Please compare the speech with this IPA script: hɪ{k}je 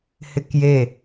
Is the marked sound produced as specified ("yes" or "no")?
yes